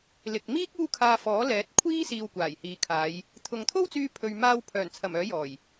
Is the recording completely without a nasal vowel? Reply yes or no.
yes